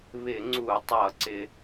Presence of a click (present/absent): present